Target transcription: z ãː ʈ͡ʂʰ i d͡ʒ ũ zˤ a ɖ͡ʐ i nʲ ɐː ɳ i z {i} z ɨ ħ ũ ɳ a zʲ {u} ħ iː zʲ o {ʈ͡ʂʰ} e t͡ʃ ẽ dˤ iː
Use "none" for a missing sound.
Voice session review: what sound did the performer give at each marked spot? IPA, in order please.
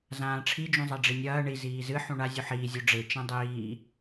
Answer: iː, u, ɖ͡ʐ

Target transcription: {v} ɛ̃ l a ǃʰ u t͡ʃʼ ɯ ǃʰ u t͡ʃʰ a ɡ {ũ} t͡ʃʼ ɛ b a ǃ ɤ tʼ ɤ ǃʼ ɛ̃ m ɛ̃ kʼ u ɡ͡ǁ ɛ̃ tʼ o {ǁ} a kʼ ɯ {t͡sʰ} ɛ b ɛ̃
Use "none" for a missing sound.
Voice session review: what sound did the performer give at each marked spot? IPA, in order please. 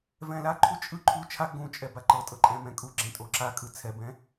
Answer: v, ũ, ǁ, t͡sʰ

